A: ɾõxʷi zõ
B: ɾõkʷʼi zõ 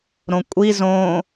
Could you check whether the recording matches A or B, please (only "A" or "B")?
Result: B